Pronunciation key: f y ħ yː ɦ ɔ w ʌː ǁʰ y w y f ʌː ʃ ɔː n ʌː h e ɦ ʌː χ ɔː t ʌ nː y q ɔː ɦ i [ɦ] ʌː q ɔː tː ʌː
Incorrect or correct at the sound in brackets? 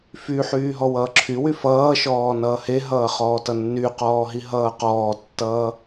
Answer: correct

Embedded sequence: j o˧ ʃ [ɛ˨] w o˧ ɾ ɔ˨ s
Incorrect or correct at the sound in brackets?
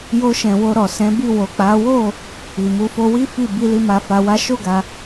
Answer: incorrect: ɛ̃˨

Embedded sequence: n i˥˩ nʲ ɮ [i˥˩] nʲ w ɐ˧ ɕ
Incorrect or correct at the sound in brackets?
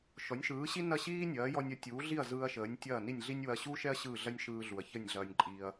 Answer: incorrect: i˥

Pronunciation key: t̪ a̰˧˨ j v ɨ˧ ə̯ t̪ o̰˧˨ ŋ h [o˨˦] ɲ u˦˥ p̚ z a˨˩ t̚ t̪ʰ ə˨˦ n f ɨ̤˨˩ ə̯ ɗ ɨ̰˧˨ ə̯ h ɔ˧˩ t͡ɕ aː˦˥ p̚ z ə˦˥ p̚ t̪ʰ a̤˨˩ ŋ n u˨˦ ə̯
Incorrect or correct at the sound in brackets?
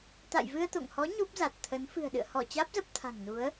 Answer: incorrect: ɔ˨˦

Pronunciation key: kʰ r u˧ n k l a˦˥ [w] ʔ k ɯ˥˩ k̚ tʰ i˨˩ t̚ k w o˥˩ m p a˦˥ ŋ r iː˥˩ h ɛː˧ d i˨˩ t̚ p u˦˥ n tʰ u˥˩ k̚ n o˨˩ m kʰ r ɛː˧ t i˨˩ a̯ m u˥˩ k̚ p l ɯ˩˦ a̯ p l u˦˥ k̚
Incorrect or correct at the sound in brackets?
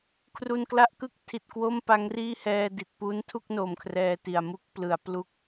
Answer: incorrect: none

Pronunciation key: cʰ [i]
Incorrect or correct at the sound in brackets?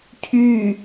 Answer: incorrect: y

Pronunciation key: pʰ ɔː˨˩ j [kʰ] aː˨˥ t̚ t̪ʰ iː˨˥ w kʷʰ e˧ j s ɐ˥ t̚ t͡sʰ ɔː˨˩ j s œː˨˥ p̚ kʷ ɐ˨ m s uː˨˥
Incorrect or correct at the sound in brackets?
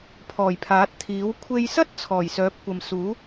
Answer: incorrect: pʰ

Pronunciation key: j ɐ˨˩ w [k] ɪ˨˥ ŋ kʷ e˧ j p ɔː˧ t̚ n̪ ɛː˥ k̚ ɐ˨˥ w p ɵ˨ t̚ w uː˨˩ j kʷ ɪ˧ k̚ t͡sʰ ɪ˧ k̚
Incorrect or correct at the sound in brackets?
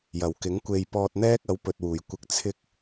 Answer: correct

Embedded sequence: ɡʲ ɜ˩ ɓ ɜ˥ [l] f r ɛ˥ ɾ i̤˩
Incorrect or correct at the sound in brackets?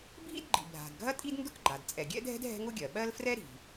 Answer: correct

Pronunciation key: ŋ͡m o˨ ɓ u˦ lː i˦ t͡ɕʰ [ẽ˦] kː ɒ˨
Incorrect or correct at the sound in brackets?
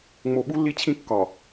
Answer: incorrect: ĩ˦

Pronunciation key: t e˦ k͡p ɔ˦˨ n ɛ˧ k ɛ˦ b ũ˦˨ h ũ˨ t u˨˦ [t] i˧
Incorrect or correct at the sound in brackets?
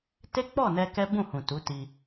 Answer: correct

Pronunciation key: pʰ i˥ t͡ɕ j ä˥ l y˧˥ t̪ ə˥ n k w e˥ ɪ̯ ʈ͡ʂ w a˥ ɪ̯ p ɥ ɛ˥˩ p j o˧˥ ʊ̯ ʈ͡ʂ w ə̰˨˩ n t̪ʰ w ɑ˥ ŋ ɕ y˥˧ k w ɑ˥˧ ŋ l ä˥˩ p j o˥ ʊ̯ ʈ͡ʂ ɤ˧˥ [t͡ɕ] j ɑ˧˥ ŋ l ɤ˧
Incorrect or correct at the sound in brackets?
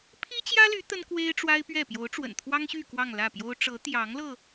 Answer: incorrect: t̪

